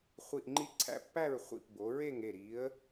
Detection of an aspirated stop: present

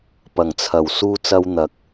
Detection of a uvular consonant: absent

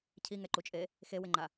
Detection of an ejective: present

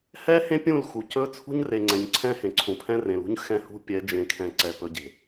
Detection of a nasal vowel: present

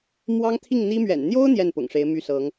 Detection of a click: absent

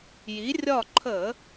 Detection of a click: present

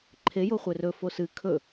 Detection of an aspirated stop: present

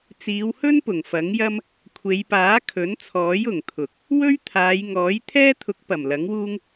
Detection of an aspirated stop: present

